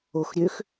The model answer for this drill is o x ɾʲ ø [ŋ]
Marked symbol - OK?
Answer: no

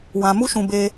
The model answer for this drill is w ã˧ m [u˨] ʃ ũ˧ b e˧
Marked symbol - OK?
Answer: no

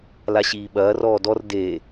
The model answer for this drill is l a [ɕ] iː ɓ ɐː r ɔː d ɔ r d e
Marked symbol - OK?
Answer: yes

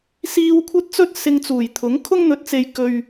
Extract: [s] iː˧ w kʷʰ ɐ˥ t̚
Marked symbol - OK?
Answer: yes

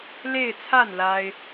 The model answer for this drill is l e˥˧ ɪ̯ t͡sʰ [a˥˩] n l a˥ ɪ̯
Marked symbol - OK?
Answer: yes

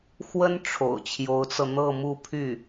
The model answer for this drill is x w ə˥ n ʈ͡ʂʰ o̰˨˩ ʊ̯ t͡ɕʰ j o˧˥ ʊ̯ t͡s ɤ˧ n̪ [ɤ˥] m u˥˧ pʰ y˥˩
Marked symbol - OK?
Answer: no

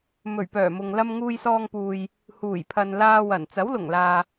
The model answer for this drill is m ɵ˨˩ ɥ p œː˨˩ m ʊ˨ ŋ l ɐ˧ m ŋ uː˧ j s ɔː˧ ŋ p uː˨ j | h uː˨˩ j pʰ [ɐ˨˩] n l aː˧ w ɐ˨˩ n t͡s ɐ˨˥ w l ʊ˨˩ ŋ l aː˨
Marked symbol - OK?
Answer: no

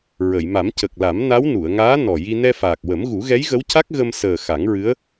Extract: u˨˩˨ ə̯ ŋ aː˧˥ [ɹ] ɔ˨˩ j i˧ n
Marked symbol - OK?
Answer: no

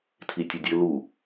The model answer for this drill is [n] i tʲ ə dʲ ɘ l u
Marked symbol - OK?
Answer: no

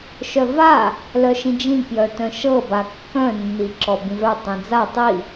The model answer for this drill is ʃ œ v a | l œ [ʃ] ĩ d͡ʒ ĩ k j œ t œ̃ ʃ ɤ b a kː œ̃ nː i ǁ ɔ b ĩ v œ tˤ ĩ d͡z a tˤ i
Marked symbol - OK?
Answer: yes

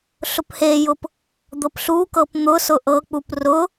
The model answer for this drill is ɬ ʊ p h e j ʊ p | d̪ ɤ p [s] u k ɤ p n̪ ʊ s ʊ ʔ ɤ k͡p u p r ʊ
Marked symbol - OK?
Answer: no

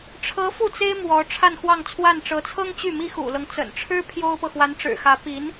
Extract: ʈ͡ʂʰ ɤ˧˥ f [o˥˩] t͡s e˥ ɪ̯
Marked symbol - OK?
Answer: no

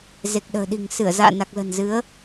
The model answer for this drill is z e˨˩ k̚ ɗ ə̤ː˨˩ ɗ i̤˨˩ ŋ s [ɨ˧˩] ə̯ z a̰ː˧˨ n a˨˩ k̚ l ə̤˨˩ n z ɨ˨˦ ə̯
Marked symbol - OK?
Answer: yes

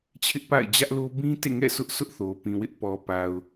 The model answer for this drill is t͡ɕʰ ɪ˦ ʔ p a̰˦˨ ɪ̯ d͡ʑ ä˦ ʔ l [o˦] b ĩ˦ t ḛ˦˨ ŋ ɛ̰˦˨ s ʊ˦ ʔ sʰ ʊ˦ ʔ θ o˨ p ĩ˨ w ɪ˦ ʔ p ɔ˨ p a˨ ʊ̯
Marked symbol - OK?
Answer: yes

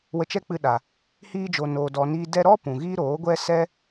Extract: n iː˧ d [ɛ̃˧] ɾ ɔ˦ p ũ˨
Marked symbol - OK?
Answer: no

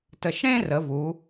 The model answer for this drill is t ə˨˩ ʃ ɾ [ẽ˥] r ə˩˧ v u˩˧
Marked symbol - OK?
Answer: yes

